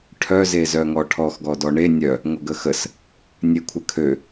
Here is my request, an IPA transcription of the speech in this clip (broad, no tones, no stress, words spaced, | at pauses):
ʈʰœ zezœŋɔʈʰɔx ɡɔdɔɳe nʲœ | ŋʷəɡəxəs | nʲekʷʰəkʰø